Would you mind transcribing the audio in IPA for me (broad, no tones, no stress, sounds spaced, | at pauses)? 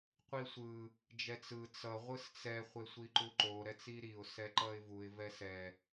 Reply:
qʷ i sʷ ɯ | d͡ʒ ɛ t͡s ɯ t͡s ʌ ʁʷ ɯ s t͡s ɛ χʷ e sʷ i ǃ u ǃ o ɾ ɛ t͡s i ɾ i ʊ̯ s ɛ ǃ ʌ ɪ̯ v u ɪ̯ v ɛ s ɛ